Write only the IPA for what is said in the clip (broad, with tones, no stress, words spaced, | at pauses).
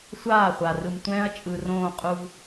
sʷaː˦˨χʷa˨rɯ˨mtʷɛ̃ː˦ɐ̯ t͡ʃʼɯ˨rõː˦˨qʼu˦v